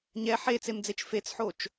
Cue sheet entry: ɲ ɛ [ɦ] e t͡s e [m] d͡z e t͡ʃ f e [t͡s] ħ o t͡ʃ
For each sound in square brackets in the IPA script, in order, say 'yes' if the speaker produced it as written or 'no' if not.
no, yes, yes

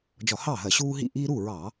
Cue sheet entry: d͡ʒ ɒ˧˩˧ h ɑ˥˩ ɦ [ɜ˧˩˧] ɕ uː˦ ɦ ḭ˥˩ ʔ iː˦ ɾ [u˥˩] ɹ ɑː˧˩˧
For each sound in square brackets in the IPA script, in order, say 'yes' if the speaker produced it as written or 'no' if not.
yes, yes

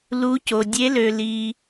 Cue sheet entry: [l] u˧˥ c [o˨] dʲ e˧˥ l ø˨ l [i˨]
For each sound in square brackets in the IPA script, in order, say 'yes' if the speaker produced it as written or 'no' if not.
yes, yes, yes

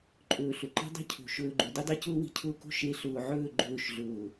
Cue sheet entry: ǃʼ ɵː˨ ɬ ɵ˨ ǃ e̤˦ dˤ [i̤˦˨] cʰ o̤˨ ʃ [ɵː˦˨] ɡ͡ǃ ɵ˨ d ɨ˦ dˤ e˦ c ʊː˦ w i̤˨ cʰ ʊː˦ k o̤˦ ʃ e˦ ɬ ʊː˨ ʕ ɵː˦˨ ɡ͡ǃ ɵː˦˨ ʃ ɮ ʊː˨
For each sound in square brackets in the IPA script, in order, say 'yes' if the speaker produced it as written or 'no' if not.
no, no

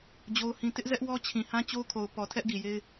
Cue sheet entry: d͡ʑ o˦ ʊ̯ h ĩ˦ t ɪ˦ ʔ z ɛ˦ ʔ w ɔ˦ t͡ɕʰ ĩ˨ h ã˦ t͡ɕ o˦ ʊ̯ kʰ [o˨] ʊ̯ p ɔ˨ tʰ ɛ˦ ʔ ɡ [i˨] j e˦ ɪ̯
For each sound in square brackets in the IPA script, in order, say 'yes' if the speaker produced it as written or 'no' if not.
yes, yes

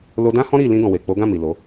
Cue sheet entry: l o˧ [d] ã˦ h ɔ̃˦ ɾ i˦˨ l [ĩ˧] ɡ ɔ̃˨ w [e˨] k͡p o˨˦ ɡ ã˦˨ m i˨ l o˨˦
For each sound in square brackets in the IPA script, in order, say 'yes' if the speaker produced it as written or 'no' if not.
yes, yes, yes

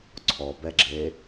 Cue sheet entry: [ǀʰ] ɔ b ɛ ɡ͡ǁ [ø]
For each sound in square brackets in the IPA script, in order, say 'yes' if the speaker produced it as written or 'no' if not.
yes, no

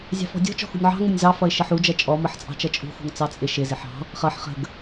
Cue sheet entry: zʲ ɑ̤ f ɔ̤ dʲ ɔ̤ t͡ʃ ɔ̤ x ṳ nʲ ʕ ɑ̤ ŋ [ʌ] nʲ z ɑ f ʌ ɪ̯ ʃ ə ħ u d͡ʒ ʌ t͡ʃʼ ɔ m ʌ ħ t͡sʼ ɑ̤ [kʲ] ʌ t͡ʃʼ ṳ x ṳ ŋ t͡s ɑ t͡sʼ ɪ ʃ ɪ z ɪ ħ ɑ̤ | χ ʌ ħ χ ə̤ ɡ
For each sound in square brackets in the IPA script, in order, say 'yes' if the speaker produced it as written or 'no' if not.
no, no

